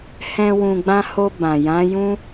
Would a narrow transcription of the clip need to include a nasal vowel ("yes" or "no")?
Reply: yes